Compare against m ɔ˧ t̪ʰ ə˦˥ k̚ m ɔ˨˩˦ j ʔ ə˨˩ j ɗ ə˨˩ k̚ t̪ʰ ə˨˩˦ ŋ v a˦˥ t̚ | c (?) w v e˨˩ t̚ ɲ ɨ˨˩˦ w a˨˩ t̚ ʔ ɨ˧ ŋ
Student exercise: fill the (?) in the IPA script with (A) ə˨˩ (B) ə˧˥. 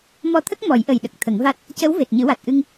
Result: B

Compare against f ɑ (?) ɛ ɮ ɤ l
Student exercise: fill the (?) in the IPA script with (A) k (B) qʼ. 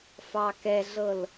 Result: A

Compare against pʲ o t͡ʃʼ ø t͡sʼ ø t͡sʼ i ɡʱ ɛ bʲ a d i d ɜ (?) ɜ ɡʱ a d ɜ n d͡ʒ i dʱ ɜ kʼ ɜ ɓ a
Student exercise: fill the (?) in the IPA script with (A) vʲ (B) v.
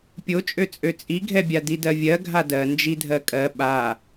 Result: A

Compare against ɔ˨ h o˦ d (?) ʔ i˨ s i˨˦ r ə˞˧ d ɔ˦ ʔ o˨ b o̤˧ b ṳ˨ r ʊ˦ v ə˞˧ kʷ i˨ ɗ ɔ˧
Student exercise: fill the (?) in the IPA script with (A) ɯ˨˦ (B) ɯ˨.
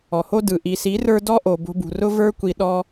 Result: B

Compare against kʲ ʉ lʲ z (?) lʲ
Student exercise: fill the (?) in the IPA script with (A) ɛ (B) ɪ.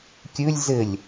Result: B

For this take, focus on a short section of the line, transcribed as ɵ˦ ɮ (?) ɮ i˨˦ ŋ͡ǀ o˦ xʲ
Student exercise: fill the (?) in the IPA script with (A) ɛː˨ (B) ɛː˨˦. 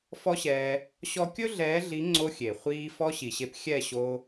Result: B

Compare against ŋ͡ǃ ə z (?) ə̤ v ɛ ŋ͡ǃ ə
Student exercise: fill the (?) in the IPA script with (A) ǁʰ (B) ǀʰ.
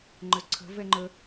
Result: B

